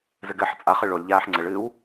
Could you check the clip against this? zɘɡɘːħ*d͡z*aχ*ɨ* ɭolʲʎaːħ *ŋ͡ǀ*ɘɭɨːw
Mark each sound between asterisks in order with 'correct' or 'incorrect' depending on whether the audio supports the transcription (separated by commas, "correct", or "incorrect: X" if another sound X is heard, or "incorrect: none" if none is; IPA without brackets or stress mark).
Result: incorrect: t͡sʼ, correct, correct